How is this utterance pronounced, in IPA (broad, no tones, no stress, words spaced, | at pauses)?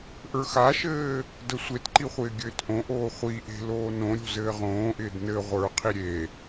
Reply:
ʔə˞xaʃɘː | dəsʷetǃi χʷɪːɡʲɘːtʔõʔoː χʷiʔe̤ loːnõɾʲo̤ zɘːʁõːʔɪːd nɘ ʁʷə˞qʰi ɾʲe